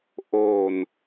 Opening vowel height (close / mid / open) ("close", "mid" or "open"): mid